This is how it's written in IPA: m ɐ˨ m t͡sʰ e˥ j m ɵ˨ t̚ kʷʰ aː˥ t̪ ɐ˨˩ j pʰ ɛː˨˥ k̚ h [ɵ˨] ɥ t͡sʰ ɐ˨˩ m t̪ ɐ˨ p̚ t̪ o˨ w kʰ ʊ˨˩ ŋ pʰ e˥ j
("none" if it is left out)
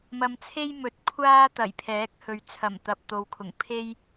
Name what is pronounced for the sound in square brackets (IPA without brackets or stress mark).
ɵ˨˧